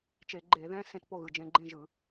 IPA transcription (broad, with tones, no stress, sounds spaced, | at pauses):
t͡ʃ e˧˩˧ ɡ͡ǃ e˧˩˧ ð ɛ̃˧˥˧ s ẽ˥˨ t p o˥˨ ɣ ɯ˩˧˩ d͡ʒ ẽ˧ ɡ͡ǃ ẽ˥˨ ʒ ɯ˧˩˧